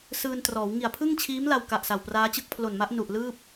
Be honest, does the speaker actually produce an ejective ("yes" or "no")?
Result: no